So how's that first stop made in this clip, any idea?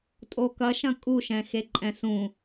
ejective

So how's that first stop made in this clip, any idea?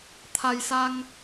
aspirated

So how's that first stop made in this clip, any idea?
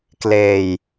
plain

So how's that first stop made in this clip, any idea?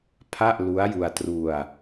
aspirated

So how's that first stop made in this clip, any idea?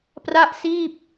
plain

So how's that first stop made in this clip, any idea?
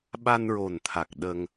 implosive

